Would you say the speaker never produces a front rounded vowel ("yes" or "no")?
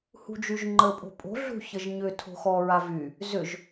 no